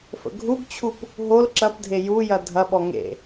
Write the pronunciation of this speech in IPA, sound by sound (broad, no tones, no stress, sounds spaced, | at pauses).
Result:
f ə̰ ɡʱ u ɡ t͡ɕʰ u p | ɦ o l ǁ ɐ p dʱ e j u j ɐ dʱ ɐ ɓ ɔ ŋ ḛ